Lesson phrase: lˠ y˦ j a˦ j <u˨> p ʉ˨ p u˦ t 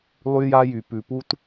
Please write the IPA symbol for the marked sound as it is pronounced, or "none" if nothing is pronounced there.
y˨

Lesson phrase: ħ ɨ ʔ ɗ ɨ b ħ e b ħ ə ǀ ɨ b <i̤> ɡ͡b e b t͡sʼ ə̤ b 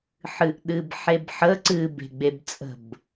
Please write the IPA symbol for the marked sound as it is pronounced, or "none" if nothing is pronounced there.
e̤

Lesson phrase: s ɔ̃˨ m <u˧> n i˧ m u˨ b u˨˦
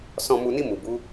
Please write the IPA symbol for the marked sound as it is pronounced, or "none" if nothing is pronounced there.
u˨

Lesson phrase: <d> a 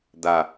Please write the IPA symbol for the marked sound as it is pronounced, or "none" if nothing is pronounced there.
d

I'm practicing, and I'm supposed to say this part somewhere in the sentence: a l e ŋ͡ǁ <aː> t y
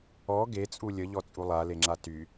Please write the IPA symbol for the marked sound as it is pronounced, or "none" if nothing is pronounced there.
a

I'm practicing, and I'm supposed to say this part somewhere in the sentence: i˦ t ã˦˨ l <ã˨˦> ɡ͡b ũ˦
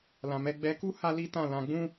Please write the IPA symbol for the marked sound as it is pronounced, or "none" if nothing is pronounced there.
ã˧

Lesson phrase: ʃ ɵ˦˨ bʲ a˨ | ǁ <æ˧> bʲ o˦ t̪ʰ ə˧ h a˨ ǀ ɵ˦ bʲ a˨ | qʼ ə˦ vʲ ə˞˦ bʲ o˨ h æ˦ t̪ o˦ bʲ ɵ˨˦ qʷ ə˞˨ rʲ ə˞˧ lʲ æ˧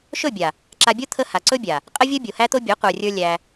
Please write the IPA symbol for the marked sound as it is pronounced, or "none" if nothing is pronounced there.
a˧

